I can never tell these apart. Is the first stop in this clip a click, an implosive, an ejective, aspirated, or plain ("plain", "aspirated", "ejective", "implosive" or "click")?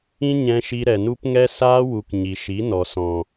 plain